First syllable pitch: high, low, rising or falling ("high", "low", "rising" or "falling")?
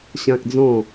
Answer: high